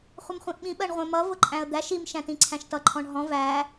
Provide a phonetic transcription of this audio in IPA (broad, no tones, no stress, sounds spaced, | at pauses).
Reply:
χʷ ə m χʷ ĩ ʔ ɓ ĩ ɓ ɜ ɳ ʁʷ ɛ̃ m ʌ v ʊ ǃʼ æ̃ ə̯ d̪ æ ʃ i m ʃ æ̃ t ĩ ǀʰ æ̃ ʃ t ʌ ǃʰ ɔ̃ ɳ ɦ ɔ̃ v æ